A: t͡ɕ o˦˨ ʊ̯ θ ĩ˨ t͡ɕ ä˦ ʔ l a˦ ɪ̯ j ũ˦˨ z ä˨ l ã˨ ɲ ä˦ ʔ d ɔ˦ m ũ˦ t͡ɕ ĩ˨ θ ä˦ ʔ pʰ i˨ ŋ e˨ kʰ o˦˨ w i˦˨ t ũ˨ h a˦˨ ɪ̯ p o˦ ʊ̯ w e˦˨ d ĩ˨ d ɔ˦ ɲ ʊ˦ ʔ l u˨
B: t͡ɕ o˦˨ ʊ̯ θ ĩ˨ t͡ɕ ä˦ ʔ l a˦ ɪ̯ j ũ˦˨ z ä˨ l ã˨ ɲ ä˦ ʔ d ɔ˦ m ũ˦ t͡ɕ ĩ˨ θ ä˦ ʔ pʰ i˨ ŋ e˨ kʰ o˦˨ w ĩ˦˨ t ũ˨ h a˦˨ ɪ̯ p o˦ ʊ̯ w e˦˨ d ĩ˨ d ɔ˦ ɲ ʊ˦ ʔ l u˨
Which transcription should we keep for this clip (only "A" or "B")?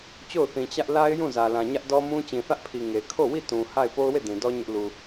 A